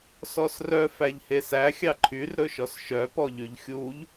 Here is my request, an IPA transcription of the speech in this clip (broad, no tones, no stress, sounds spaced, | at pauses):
s ɔ s r œ f æ ʎ h e s æ xʲ ɑ ǃʰ y r ɾ ɵ ʃ ɔ s ʃ œ p ɔ ʎ y ʎ xʲ u ʎ